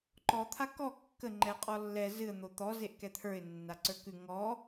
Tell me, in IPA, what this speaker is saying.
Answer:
ǃ ɔ t̪ʰ a k ɔ kː ə ŋ͡ǃ ɛ qʼ ɔ lː ɛ z ɨ ə̯ n̪ o t̪ ɔ z e ʔ k ɛ t̪ʰ ə˞ ɪ̯ nː a ǀ ə˞ k ʉ ŋ ɔ

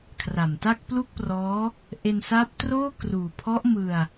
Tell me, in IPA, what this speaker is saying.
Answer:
kʰ r a˨˩ m t a˥˩ k̚ p l u˥˩ k̚ p r ɔː˦˥ | ʔ e˧ n s a˦˥ p̚ t r oː˥˩ k r uː˨˩ pʰ ɔ˦˥ ʔ m ɯ˧ a̯

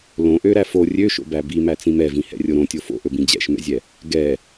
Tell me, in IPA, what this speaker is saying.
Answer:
l õ ʔ ø ɾ æ f o rʲ ø ʃ o̰ b æ b i m æ t͡s ĩ m ɛ v ĩ h ɛ̰ rʲ o ɾ õ tʲ o f o̰ ʔ ɵ b ĩ d͡ʑ ɛ̰ ʃ m ɛ̰ zʲ ɛ | ɡ ɛ

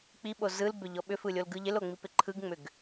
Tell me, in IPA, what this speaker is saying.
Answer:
k͡p i ɓ o z ɯ l b ʏ ʎ ɔ ɓ ʏ f ɯ lʲ o l ɡ ɯ ʎ ɪ l o ŋ͡m i p ɪ ǃʰ ɯ ɡ ŋ͡m ʏ ɡ

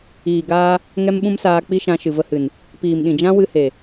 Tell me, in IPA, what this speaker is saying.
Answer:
iː˨ ɡ aː˧ | ŋ ɛ˦ m ɓ ũ˦ m s aː˧ k͡p i˦ ʃ ã˧ ʃ ɨ˨ v ə˧ h ɨ˨ n | p iː˨ m ɗ ĩ˨ d͡ʒ ã˦ w ɨ˦ h e˨

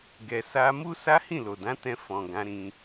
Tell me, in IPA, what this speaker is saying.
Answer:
ɡ ɛ˧ s a˧ m u˦ s a˦ h ĩ˦˨ l o˨ d ã˨˦ t ɛ̃˧ f ɔ̃˨ ɡ ã˨˦ ɾ ĩ˧

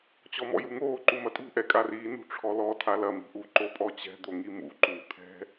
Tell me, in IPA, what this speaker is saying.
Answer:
t͡ɕ ɔ m ɔ̰ j u ŋ oː ǃ u m ɐ tʼ ṳ ʔ ɛ kʼ a r iː n ṳ ʈ͡ʂʰ ɔ l ɔ tʰ a l ɐ m i̤ ʔ u ǃ o pʼ ɔ t͡ɕ ɛ̤ d̪ o ŋ i m ṵ ǃ uː t̪ʰ ɛ̤

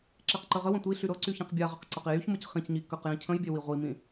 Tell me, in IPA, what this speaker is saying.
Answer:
ǁ e q ǃ ə ʁ ə w ə̃ tʷ i ɬ y ɾ ɤ ǀ y ç ĩ q bʲ a ʁ ə q ǀ ɤ q i j y ç m ɤ c χ ĩ c ɲ i k ə q j ĩ cʰ ə̃ j bʲ e w i ʁʷ i m ĩ

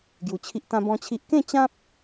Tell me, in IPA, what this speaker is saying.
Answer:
ɡ j u˧ t͡ɕʰ i˦ ʔ t̪ ã˦ b ɔ̃˦ t͡ɕʰ i˦ ʔ k ẽ˥˧ t͡ɕ ã˦ p̚

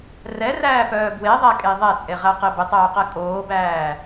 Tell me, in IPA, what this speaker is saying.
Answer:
r ɛ r æː p œː b w e ðˤ æ kʼ e ðˤ ɛ t͡sʼ e ʁ æ q e b ɪ tˤ œː q ɛ kʼ oː b æː

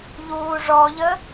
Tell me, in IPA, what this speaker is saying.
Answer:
ʎ uː ʐ ɔ ʎ ə

